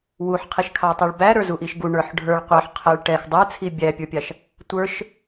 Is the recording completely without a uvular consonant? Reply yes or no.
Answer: no